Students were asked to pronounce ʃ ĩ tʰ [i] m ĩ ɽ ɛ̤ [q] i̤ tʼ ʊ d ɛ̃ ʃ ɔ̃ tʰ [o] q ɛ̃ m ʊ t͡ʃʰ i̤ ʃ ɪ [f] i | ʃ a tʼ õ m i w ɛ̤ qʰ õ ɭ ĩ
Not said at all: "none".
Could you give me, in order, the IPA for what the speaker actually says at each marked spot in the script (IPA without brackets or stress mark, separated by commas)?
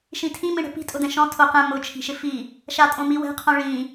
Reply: ĩ, p, o, f